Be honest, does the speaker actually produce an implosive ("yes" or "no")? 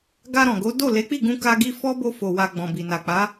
no